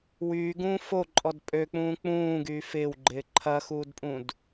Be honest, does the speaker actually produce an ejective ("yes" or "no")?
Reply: yes